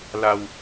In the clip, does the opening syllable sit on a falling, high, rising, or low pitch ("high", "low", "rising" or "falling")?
low